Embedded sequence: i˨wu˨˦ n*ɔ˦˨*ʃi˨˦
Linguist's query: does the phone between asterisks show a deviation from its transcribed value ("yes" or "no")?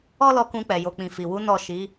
no